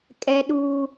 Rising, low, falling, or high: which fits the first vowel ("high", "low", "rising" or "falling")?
high